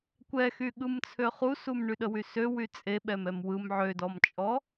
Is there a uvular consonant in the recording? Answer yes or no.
yes